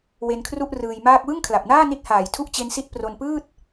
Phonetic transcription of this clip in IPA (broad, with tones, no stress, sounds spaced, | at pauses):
w e˧ n kʰ r u˥˩ ʔ r ɯː˧ j m aː˥˩ k̚ w ɯ˥˩ ŋ kʰ l a˨˩ p̚ n aː˥˩ n i˦˥ t̚ h aː˨˩ j tʰ u˥˩ ʔ t͡ɕ e˦˥ n s i˦˥ t̚ p r o˧ n p ɯː˥˩ t̚